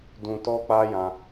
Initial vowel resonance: nasal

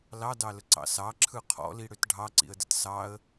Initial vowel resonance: oral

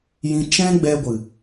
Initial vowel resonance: nasal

